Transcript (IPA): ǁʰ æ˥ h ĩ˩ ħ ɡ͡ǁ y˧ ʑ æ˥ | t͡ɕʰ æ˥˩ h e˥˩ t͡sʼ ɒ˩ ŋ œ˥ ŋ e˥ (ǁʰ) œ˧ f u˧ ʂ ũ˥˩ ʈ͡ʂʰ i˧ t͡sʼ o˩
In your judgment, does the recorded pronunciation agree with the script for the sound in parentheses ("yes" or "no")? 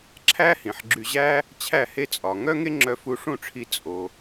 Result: no